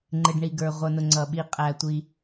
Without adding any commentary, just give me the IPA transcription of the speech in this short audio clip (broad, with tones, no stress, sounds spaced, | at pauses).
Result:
ŋ͡ǃ ɪ˩ ɖ ɳ i˩ ɡ ə˞˩ ʁʷ ʌ˩ n ʊ˩ ŋ͡ǀ ʌ˩ ɓ i˩ qʼ æ˩ tʷ i˩